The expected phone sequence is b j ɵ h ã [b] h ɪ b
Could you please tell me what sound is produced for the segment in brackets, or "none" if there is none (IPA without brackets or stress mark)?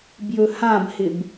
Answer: b